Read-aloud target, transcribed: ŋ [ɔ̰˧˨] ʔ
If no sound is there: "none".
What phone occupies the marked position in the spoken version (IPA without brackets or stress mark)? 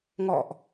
ɔ̰˧˨